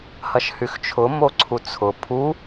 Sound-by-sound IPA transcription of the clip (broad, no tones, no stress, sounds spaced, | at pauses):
h ɐ ʃ h y x t͡ʃʰ ʊ m o ǀʰ u t͡sʰ ʊ pʰ u